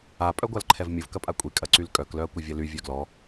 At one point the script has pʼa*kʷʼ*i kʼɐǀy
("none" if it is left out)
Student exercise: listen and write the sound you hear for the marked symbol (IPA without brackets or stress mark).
kʷʼ